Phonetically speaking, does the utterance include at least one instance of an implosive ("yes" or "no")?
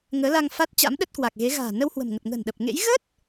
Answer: yes